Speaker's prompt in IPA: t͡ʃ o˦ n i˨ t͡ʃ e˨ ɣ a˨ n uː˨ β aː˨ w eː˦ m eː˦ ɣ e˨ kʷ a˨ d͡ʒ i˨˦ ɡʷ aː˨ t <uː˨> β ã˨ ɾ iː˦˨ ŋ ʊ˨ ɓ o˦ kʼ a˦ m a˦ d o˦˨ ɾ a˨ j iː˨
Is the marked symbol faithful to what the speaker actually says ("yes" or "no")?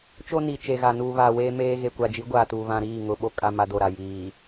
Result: yes